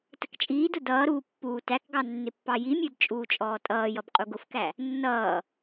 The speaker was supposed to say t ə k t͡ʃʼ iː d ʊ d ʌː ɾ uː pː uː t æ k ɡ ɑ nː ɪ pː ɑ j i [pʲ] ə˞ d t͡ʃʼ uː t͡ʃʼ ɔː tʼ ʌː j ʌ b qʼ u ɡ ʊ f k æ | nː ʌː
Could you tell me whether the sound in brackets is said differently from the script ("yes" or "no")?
yes